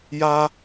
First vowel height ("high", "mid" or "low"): low